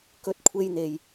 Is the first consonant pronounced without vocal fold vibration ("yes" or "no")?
yes